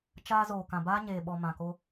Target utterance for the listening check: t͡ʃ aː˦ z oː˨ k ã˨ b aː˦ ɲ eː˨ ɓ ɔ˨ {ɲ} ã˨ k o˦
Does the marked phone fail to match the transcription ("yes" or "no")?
yes